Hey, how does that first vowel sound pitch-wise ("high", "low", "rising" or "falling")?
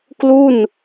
falling